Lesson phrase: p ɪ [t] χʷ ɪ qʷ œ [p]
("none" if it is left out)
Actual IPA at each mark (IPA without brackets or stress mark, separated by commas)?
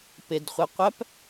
d, p